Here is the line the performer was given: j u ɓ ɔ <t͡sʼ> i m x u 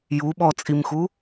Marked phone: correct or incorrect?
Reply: correct